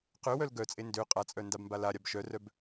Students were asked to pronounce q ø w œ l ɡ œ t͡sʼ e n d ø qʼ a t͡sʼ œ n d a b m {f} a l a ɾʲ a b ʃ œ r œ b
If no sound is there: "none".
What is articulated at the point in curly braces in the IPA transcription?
b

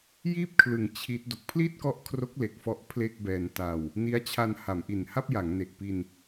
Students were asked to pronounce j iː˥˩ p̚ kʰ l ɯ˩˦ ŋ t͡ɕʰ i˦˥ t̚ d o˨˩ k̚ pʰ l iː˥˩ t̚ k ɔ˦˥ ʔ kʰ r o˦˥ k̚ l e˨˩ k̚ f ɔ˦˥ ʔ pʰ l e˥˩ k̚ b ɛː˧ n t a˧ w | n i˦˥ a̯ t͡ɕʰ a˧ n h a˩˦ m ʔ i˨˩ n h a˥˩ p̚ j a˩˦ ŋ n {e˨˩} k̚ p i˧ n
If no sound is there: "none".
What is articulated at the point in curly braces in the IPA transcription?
e˨˩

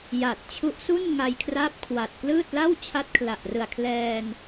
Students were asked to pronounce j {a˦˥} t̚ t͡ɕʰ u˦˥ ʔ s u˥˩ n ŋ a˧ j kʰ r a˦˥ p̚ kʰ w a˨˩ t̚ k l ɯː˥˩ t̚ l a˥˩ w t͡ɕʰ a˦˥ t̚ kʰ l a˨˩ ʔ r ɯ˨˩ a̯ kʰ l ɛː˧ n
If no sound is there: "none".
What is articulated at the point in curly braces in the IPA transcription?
a˨˩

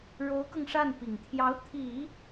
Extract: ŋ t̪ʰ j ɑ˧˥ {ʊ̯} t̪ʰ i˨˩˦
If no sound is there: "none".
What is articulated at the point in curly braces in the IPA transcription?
ʊ̯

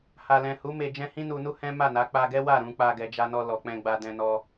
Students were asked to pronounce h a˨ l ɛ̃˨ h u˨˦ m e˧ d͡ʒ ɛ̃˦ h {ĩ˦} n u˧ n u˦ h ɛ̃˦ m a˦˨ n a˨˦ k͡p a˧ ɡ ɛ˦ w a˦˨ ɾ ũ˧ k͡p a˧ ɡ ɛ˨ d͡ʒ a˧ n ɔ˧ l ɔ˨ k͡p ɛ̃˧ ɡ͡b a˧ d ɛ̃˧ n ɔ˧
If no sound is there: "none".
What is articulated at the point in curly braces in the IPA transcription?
ĩ˦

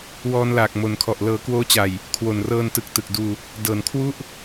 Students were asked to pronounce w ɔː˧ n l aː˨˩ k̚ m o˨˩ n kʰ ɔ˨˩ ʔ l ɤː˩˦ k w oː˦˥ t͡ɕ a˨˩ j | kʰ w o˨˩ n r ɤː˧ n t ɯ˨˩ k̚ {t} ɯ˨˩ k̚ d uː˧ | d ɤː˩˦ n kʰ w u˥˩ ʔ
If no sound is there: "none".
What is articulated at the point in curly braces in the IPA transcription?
t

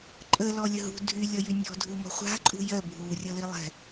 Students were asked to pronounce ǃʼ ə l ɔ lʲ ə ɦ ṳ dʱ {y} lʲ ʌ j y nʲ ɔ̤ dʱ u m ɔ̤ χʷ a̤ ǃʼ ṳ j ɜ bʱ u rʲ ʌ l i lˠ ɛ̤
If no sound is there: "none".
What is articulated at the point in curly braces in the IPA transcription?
y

